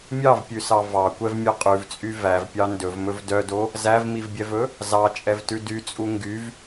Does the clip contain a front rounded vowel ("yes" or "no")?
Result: yes